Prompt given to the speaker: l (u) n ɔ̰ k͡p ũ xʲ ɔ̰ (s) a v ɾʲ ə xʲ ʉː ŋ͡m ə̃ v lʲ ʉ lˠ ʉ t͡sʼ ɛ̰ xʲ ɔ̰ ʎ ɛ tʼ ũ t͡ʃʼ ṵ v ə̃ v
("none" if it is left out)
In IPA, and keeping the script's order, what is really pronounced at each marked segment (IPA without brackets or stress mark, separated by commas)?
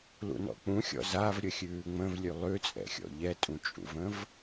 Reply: ṵ, z